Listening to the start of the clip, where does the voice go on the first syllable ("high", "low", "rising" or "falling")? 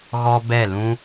high